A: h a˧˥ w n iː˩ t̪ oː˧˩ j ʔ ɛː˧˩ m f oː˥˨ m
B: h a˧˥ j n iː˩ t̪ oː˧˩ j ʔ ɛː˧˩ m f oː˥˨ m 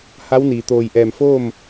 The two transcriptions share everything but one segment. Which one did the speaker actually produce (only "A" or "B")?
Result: A